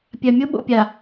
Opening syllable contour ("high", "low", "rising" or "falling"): low